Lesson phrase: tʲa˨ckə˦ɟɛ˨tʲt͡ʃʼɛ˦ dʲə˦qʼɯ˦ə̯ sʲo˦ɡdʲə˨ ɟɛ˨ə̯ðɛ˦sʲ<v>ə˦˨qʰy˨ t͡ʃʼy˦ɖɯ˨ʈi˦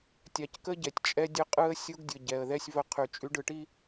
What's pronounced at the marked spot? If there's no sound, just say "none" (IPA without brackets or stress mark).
v